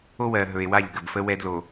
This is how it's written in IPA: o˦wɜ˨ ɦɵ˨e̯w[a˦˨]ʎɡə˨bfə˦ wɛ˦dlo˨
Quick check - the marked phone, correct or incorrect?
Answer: correct